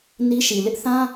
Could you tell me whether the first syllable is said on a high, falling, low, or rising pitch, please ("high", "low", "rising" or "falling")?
high